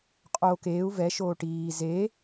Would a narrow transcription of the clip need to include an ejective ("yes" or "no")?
yes